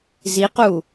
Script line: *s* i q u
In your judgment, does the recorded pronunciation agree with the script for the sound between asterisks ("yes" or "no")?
no